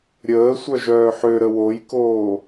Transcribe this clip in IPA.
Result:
ɾʲ əː sʷ œ ʒ œː ħ ø ɾ ə w o j k oː

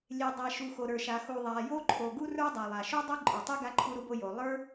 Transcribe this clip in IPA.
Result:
lʲ e˩ dˤ a˩ ʃ u˩ x o˩ ɾ ə˞˩ ʃ a˩ x u˩ ðˤ a˩ j o˥ ǃʰ o˩ ɡ u˥ r ə˞˥ dˤ a˩ lˠ a˩ ʃ o˥ dˤ o˥ ǃʼ ə˞˩ tˤ e˥ ɡ a˥ ǃʰ u˥ ɾ u˥ b o˥ j o˩ lˠ ə˞˥

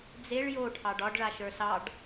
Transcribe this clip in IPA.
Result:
d͡z e ɭ j o ʈʰ ɑ ɖ ɒ ɖ ɭ a ʃ ə˞ s ɑ ɖ

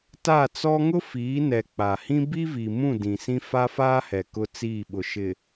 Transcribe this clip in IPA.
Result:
t a˦˨ t͡s ɔ˦ ŋ ʊ˦ f iː˨˦ n ɛ˨ k͡p a˨ h ĩ˦ b i˦ v i˨ m ũ˦˨ d ĩ˨ s ĩ˦ f a˦ f aː˦ h ɛ˨ k ʊ˦ t͡s iː˦˨ ɓ ʊ˨ ʃ ɪ˨

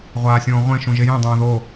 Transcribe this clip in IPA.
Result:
ʁʷ aː sʲ õː ʁʷ ẽ ʃ ũ ʒ e j ẽ dˤ õː ð o

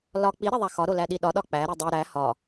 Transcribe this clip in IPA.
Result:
l ɒ k͡p i ɾ e ðˤ æ x ɒ ɾ o l æ ɗ i ɗ ɒ ɗ ɒ k͡p æ ɾ i dˤ i ɾ æ h ɒ

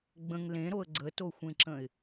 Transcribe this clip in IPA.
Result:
ɡ͡b ə̃ ŋ l ẽ ɾ o ə̯ ɡ͡ǀ ə t o xʷ ẽ ǁ ə̃ ɪ̯

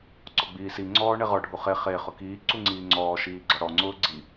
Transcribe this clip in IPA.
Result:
ǀ ɔ ɡ͡b iː s i ŋ͡ǀ ɔː ɳ e ʁ ɔ ɖʱ u χ e χ e χ ʊ k iː ǀ u ŋ͡ǀ iː ŋ͡ǀ ɔː ʃ iː ɡ͡ǀ ɔ ɽ ɔ ŋ͡ǀ ʊː ɡ͡ǀ i

